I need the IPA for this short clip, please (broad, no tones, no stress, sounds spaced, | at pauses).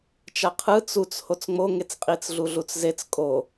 t͡ʃ a qʰ ɯ t͡s u t͡s h o t͡s ŋ͡m o ŋ e t͡s qʼ i t͡s ɮ u ɮ u t͡s z e t͡s kʼ o